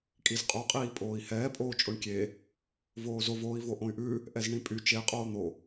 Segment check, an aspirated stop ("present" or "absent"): absent